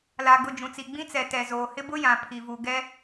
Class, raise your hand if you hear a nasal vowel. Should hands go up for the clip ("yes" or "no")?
yes